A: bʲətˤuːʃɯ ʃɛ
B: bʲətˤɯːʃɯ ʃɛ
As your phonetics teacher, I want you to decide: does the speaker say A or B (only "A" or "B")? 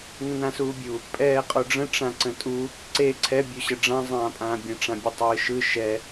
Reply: B